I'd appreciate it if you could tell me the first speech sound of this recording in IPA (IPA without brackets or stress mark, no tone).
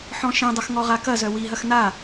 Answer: ħ